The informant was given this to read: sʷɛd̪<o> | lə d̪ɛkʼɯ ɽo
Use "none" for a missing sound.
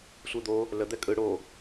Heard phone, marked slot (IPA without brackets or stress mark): o